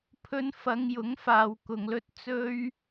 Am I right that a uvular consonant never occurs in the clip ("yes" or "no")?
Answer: yes